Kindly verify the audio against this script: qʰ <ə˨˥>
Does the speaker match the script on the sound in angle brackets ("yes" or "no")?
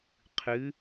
no